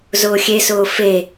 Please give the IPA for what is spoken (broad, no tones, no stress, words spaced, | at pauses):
zʊːxʲesʊː fe